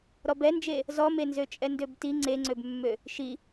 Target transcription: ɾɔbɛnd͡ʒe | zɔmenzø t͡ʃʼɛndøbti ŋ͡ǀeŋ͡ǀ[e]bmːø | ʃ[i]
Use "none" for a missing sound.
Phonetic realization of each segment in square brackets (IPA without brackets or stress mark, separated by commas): ø, i